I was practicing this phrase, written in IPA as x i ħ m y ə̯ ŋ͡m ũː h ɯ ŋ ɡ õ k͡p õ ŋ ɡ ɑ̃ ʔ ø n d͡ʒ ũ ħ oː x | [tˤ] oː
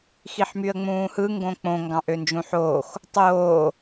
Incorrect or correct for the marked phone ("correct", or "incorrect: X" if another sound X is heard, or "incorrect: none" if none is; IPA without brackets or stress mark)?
correct